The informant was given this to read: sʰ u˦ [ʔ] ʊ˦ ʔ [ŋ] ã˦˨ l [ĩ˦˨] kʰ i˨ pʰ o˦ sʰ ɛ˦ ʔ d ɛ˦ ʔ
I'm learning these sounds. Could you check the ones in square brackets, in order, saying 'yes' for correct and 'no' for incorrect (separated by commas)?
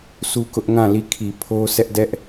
no, yes, no